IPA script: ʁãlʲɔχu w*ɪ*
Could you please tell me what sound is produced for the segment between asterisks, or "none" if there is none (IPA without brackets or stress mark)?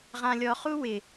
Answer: ɪ